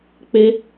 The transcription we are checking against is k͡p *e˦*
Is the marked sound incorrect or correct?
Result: correct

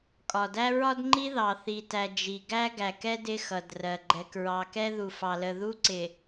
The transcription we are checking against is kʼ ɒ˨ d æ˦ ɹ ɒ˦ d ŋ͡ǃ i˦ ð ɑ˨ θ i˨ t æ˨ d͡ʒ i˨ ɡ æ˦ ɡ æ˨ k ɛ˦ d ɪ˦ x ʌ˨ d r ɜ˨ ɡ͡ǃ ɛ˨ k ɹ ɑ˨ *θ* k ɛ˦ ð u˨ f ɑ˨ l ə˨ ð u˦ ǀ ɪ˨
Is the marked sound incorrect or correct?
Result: incorrect: none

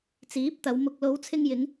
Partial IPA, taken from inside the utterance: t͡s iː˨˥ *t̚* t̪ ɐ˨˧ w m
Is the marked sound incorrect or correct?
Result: incorrect: p̚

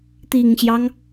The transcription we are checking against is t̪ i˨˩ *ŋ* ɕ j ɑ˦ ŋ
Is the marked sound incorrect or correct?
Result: correct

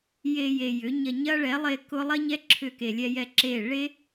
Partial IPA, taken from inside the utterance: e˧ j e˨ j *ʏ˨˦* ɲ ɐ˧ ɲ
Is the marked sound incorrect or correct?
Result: correct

